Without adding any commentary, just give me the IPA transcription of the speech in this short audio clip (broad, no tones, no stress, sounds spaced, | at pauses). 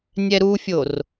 nʲ ɛ ɾ u fʲ o r